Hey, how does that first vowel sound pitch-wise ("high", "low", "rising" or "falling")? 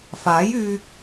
rising